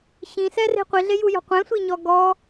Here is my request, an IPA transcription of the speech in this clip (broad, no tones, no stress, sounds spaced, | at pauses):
ɕ ĩ s ɛ r e̤ qʷ i ɮ e j u j ɔ̤ qʷ ɛ̃ sʷ i ɲ ɔ ɡ ɔ